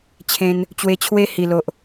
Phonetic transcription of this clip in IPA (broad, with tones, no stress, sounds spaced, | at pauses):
t͡ɕʰ ẽ˧ n | t͡ɕ w e˧ t͡ɕʰ w e˦ h i˨˩ l o˨ ʔ